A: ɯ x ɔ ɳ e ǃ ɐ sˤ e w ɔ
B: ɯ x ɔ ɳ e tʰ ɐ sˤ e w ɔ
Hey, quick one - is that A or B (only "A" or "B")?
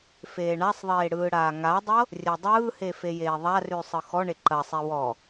A